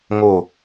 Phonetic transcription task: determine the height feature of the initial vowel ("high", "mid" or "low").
mid